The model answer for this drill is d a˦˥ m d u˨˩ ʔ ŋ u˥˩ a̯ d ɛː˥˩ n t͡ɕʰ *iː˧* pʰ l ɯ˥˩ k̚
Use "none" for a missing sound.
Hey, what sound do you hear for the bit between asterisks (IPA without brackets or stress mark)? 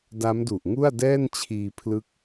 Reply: iː˧